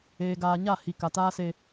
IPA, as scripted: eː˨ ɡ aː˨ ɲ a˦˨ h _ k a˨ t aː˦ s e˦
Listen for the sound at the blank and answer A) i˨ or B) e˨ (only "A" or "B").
A